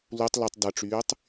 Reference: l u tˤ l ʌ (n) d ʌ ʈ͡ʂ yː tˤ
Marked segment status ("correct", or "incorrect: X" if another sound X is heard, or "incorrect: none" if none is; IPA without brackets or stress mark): incorrect: tˤ